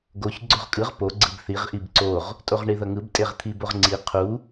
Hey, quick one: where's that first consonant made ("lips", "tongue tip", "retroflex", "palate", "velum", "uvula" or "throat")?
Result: velum